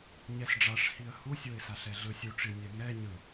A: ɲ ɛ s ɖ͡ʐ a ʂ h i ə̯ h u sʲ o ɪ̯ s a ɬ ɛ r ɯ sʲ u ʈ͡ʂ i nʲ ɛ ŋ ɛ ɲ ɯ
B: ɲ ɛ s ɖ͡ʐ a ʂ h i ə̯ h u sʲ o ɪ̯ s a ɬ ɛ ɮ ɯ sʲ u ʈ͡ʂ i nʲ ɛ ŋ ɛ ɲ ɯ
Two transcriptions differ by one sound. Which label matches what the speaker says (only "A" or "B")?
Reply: B